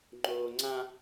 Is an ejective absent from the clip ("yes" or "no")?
yes